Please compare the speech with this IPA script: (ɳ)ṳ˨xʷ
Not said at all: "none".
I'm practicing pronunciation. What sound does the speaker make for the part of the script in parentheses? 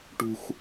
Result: ʈ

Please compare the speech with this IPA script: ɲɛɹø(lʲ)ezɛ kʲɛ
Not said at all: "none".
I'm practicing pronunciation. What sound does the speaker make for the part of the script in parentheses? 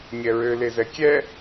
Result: l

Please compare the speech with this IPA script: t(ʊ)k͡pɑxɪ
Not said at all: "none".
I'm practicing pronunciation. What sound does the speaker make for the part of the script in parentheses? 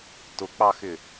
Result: ʊ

